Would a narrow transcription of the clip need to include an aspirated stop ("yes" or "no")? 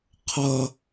yes